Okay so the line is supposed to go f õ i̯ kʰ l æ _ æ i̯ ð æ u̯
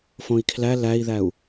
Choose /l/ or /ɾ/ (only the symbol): l